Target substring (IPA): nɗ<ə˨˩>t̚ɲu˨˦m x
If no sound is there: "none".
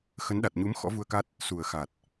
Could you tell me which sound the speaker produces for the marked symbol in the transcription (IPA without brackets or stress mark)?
a˨˩